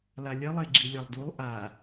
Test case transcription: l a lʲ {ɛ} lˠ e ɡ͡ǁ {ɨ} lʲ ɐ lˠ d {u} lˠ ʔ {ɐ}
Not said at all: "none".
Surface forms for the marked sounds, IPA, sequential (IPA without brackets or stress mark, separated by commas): ɛ, i, u, a